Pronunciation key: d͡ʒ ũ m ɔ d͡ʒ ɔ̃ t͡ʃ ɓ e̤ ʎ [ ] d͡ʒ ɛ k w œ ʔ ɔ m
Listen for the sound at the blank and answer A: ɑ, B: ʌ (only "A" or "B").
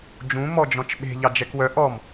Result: A